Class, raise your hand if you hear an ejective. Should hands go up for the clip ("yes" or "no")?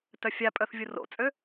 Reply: yes